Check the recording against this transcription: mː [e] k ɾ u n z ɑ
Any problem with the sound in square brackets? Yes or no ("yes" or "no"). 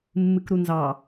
yes